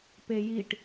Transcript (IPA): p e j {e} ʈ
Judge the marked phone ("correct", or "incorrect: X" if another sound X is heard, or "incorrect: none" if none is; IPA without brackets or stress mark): incorrect: i